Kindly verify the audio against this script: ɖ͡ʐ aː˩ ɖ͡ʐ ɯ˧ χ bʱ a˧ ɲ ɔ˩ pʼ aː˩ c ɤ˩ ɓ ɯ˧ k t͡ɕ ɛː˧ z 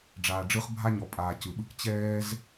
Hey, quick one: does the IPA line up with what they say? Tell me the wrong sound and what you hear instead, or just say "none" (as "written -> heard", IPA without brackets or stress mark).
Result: ɤ˩ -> ɯ˩